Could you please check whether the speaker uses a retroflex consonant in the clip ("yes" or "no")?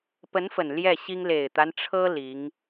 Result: yes